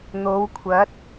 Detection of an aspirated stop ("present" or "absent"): present